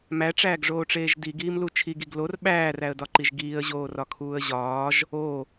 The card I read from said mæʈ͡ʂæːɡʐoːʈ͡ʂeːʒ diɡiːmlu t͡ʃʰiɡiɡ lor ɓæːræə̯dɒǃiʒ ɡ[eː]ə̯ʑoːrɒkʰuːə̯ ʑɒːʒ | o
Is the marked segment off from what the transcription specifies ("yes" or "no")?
yes